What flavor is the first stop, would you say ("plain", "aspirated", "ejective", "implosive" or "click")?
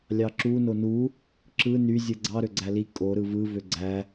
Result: click